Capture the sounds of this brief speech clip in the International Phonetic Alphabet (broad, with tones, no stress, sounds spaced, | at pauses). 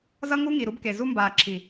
z ʌ˦ ŋ u˦ ŋ i˨ ɾ u˦ b k e˨ z u˦ m b aː˨ ǁʰ i˨